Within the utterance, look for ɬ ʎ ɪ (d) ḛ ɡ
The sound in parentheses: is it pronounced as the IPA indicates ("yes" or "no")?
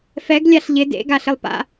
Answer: yes